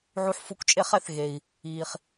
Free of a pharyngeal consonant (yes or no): no